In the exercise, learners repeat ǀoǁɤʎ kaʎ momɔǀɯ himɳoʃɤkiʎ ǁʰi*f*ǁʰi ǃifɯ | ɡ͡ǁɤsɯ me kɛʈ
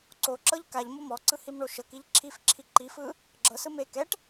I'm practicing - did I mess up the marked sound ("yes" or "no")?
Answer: no